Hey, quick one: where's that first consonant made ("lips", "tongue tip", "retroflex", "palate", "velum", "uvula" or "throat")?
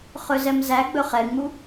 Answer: uvula